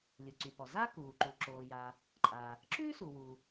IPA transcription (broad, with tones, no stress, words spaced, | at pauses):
lʲu˩ǀy˩pɔ˩ za˥kuː˩ ǃu˩ǁoː˩ja˩ | ǃʼa˩ | ǁʉː˥su˩ wu˩